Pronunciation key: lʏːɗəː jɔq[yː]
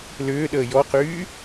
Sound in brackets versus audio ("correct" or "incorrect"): correct